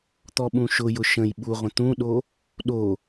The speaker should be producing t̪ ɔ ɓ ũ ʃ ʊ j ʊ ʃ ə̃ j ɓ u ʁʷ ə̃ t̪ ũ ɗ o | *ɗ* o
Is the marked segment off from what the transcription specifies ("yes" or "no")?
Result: no